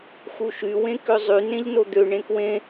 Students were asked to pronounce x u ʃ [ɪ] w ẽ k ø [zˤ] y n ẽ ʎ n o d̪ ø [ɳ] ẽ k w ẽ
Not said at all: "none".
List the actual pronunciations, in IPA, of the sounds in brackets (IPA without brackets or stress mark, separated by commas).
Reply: y, zˤ, ɳ